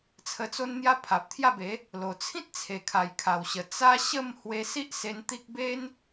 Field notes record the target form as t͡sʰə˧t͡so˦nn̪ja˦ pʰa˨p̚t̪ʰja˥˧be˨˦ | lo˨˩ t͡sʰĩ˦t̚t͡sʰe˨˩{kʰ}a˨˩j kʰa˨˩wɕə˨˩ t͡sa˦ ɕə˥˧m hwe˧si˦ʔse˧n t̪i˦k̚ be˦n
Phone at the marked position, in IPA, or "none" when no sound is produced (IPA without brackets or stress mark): kʰ